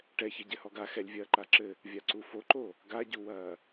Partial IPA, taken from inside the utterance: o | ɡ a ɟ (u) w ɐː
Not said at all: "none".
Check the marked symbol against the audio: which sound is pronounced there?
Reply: u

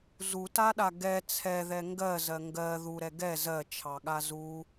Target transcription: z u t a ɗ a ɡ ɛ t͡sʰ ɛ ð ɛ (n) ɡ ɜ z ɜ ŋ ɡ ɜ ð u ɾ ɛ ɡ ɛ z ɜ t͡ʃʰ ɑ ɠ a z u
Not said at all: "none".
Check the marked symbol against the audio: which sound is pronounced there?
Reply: ŋ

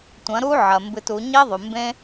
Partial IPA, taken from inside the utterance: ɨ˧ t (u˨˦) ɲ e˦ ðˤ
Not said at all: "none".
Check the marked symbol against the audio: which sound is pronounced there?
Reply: u˨˦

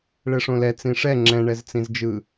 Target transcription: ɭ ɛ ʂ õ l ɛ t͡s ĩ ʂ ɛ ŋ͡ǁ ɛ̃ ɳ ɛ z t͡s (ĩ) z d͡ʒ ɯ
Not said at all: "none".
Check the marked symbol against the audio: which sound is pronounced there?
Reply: ĩ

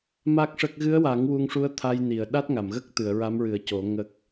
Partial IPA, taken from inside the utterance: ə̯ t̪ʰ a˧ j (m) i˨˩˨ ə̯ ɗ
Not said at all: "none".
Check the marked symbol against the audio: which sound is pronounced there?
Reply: n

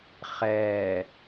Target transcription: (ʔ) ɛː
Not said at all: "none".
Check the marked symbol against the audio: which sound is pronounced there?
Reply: χ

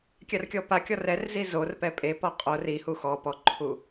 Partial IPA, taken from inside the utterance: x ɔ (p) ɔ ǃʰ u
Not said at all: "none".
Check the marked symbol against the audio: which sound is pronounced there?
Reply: p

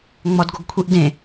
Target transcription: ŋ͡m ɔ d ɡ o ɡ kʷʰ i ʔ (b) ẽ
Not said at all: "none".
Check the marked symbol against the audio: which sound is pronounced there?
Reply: d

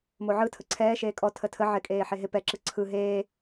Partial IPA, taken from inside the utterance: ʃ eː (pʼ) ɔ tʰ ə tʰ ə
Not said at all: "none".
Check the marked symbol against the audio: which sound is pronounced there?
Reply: kʼ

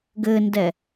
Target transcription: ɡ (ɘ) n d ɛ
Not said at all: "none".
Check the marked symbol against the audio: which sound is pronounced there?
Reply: ɘ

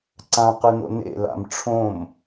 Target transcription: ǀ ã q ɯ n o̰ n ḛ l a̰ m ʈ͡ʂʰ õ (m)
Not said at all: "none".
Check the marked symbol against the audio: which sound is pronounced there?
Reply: m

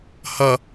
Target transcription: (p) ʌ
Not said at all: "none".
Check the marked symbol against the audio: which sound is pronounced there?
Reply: h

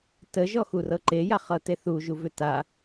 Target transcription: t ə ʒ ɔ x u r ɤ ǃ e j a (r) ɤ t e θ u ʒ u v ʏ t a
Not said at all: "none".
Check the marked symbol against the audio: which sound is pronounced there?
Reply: χ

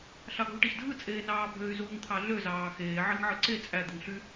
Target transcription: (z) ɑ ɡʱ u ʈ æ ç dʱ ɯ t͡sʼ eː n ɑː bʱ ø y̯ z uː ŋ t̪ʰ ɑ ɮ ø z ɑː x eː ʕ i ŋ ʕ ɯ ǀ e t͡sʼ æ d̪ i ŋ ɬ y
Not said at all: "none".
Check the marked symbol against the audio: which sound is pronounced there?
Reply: ɬ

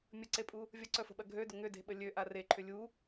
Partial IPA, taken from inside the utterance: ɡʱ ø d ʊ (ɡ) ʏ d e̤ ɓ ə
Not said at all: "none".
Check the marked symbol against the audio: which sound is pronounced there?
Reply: ŋ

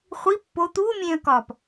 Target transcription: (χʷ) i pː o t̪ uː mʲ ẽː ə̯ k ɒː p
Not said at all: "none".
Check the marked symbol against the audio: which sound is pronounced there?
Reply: χʷ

